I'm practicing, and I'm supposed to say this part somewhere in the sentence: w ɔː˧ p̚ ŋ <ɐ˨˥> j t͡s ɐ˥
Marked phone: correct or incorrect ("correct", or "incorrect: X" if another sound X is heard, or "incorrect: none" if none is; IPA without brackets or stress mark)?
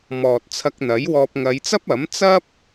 incorrect: ɐ˨˧